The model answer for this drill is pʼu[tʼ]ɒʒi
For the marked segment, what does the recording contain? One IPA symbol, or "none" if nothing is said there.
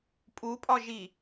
pʼ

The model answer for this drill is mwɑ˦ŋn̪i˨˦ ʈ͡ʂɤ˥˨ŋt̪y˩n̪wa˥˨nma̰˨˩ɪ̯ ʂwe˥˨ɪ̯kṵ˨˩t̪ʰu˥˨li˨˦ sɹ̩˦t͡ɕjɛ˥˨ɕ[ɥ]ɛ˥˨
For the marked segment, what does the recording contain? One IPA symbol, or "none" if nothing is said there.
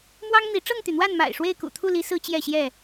j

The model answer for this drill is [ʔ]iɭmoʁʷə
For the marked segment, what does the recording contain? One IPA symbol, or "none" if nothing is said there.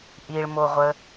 ʔ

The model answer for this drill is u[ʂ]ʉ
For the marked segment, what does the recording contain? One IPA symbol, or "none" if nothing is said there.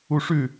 ʂ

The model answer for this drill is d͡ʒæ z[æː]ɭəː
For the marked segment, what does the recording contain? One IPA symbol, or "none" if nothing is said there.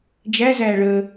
æː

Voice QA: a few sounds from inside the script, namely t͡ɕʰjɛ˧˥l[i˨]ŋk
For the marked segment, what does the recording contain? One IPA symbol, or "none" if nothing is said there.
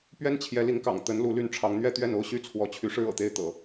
i˧˥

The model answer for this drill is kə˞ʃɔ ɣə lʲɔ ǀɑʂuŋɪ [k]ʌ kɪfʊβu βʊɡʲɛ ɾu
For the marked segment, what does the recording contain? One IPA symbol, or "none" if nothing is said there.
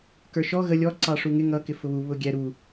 ŋ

